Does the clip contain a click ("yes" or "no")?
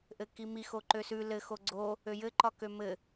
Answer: yes